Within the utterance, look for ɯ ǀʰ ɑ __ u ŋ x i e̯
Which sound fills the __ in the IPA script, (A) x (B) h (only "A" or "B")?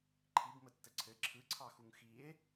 A